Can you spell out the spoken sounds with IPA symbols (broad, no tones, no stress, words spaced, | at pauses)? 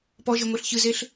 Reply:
pɔʒeŋʷeɬ çɨzeɬ